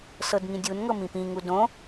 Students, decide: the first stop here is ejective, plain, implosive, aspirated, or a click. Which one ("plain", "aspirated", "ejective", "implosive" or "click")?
plain